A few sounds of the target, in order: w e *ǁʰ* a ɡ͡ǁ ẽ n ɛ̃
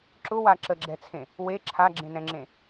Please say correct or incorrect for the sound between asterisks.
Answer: correct